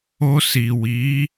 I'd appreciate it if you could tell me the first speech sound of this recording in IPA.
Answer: o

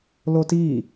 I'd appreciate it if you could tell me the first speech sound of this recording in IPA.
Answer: l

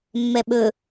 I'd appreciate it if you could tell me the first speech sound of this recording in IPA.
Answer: mː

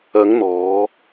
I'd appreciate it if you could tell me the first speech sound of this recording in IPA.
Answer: ɐ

